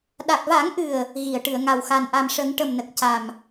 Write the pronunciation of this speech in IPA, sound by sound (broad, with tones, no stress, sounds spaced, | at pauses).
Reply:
ɗ a˨˩ k̚ v a˨˩˦ ŋ ʔ ɨ˨˩ ə̯ | ɣ i˨˩˨ ə̯ ʈ ɨ˨˩˨ ə̯ ŋ a˨˩ w x a˨˩ n ʔ a˨˩ m ʂ ə˨˩˦ ŋ ʈ ə˨˩ m n ə˨˩ k̚ c a˨˩ m